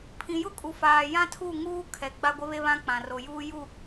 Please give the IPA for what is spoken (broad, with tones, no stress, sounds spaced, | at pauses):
pʰ ĩ˨ j ʊ˦ kʼ u˨ f aː˨ j ã˦ tʰ u˦˨ ŋ uː˦ kʰ ɛ˨ ɡ͡b a˦ ɡʷ ɪ˦ β e˦ β ã˦ k͡p ã˨ r o˨ j uː˦ j u˦˨